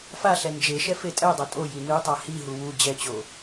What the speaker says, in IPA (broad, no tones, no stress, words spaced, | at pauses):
faɬɛ nd͡ʒeʃɛ fetʼɛdˤʌ tʼoji nɯtˤa hiɦu wu d͡ʑɛt͡ɕo